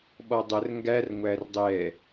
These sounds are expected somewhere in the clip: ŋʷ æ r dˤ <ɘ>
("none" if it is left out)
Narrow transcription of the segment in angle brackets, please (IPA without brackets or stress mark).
ɛ